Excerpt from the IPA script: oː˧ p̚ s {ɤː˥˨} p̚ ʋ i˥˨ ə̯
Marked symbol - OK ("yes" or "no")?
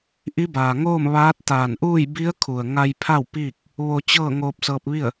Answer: no